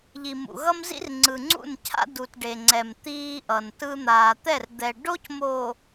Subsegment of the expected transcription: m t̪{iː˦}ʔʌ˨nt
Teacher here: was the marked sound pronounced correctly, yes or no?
yes